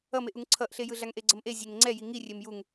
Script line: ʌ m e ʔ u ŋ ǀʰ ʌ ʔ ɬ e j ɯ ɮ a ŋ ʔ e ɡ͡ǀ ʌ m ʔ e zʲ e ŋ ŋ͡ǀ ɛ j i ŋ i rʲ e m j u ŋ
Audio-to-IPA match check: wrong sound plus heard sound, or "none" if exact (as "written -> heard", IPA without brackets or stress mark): none